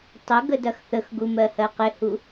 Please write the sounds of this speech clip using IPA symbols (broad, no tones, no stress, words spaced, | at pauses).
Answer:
tˤɪ ɡədɐxθəxɡu mɜhɜqɪhu